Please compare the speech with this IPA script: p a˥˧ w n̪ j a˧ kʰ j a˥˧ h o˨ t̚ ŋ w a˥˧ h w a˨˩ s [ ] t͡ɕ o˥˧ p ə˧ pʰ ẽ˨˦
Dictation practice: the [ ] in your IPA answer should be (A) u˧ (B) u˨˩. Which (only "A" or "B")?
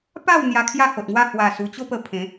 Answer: B